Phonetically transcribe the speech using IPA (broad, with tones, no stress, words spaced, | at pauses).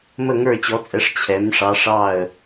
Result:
mə˧˩ŋə˞˧˩t͡ɕɔ˩˧t͡sʼɛ˩˧ʂ t͡ɕʰɛ˩˧m ʂɑ˩˧ ʂɑ˧˩ə̯